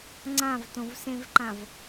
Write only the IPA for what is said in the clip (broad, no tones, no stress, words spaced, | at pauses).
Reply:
ŋ͡ǀãvtõvsẽvǃãv